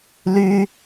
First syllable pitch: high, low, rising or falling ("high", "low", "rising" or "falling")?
high